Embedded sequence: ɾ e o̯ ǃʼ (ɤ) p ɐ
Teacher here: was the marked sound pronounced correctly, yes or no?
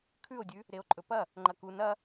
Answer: no